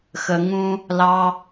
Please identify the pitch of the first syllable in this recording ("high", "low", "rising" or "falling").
low